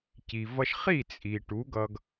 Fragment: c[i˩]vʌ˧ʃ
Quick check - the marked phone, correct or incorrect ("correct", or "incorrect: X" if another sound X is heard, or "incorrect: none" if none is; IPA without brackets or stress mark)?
correct